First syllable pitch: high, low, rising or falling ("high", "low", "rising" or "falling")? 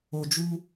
low